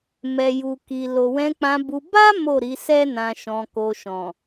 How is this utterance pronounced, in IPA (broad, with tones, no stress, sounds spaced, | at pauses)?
m ɛ˨ j u˨ k i˨ l o˨ w ɛ̃˧ k͡p ã˧ b u˧ b a˦ m o˦˨ ɾ i˨˦ s ɛ˦ n ã˧ ʃ ɔ̃˧ k o˧ ʃ ɔ̃˨